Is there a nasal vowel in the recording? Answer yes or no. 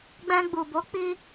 yes